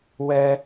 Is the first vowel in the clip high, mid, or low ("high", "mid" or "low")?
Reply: mid